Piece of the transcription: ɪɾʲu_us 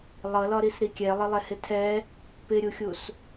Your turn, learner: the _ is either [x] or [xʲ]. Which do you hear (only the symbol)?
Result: xʲ